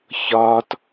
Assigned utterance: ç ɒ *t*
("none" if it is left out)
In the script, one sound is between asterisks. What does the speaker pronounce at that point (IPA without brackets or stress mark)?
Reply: t